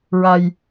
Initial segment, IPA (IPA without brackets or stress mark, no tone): ɹ